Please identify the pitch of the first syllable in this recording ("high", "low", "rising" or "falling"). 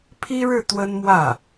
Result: high